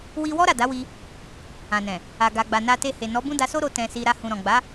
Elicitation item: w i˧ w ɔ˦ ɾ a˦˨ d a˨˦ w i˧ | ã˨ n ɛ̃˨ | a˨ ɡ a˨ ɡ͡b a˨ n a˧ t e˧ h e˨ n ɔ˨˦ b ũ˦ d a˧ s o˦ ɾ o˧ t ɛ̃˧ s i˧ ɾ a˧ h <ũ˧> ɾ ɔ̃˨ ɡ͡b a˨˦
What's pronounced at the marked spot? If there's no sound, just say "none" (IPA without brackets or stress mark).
ũ˨